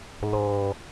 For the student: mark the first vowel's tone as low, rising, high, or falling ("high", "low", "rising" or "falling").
high